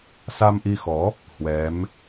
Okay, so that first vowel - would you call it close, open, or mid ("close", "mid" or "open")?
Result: open